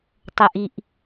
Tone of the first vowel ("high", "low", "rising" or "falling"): low